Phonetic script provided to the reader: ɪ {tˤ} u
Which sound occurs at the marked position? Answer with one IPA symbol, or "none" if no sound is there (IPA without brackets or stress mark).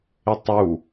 tˤ